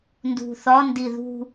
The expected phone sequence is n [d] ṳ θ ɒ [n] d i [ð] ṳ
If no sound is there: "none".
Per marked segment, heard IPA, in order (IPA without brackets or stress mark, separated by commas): d, n, ð